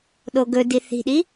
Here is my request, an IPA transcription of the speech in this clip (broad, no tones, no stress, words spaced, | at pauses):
ɗoɡɵdi θi̤ɗi